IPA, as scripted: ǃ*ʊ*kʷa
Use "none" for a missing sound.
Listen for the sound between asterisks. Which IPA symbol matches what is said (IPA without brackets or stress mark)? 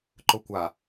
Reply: ʊ